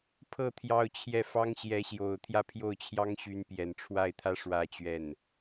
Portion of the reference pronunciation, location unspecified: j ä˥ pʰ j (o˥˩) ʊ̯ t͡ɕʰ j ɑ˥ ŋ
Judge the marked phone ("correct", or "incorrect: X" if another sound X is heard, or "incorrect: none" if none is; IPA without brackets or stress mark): correct